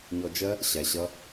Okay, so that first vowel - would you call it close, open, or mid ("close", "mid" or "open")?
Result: mid